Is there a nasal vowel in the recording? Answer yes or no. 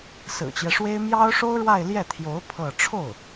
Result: no